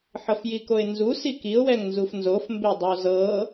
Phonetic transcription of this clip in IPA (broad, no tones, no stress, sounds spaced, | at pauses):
ħ ɤ f j i k o ɪ̯ n z u s i k i ʊ̯ w ɛ ŋ n z u f n z o f m b e dˤ o z ɤ